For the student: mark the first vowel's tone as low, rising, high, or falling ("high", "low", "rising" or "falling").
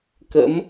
rising